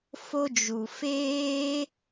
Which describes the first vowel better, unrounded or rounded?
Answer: rounded